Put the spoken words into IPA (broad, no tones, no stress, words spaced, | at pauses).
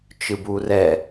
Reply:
t͡ʃɯburɛ